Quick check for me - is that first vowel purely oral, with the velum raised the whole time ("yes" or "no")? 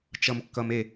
yes